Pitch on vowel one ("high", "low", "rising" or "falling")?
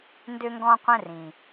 high